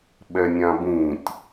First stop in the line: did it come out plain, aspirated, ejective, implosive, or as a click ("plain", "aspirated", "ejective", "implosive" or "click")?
implosive